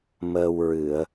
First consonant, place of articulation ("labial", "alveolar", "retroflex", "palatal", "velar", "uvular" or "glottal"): labial